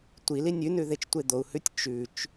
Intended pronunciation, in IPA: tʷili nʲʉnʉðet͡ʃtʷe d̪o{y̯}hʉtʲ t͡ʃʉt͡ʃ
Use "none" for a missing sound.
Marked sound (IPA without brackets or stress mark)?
u̯